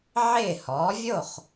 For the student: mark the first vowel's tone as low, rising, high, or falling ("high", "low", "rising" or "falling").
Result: falling